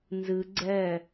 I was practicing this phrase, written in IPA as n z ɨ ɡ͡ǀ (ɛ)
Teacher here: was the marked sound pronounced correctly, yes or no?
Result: yes